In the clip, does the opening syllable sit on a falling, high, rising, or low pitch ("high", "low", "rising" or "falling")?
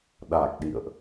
low